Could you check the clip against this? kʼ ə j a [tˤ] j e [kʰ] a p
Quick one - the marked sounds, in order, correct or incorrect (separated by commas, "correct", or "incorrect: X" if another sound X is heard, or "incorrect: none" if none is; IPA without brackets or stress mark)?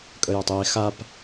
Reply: correct, incorrect: x